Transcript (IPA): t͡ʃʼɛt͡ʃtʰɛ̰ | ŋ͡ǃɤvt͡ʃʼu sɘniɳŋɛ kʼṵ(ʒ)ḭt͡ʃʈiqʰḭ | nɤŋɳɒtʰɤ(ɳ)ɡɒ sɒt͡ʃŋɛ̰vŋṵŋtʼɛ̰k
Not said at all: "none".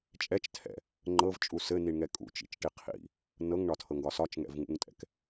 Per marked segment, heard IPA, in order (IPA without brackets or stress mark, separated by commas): t͡ʃ, ŋ